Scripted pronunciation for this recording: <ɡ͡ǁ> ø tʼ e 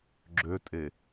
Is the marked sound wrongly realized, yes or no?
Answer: no